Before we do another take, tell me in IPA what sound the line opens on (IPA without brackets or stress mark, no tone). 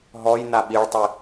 ɦ